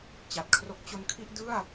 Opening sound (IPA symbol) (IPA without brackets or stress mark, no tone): t͡ɕ